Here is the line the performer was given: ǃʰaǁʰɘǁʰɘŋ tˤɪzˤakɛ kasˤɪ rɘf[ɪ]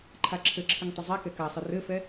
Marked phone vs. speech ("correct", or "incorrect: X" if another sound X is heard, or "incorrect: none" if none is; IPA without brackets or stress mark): incorrect: ɛ